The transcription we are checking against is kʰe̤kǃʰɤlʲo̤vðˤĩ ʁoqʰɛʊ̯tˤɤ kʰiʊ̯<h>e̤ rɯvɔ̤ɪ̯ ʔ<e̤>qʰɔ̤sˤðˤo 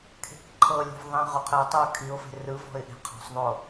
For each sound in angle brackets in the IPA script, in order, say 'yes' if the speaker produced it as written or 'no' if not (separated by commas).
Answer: no, yes